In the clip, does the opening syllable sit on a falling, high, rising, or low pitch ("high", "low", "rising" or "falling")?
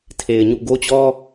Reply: low